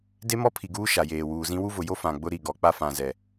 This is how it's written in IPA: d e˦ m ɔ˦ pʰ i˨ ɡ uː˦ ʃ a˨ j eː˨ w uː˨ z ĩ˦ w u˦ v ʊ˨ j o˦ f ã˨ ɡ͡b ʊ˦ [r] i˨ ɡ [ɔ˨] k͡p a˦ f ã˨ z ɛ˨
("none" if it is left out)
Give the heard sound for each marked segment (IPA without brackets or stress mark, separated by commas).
ɾ, ɔ˨